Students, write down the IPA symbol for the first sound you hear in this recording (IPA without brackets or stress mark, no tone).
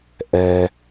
ʔ